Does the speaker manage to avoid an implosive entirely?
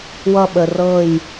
no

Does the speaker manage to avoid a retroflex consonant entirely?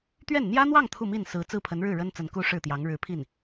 no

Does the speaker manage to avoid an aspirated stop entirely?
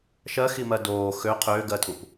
no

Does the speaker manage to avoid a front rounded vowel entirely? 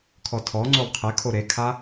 yes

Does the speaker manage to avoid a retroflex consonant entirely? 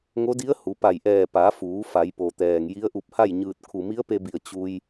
yes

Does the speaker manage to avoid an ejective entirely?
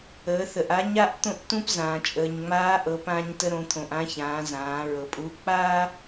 no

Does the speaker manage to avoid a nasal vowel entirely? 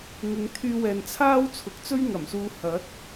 yes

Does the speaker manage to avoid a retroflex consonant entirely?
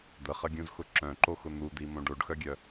no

